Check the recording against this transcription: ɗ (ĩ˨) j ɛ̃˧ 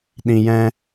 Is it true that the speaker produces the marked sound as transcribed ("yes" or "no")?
yes